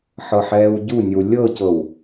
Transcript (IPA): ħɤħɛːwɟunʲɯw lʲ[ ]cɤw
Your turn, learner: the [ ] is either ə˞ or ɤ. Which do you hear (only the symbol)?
ɤ